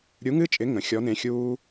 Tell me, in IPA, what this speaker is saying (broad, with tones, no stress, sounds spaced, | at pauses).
ɾʲ u˧˥ ŋ ɨ˥ t͡ʃʼ ɪ˧˥ ŋ ə̃˧˥ xʲ ɔ˧˥ n ẽ˧˥ xʲ uː˥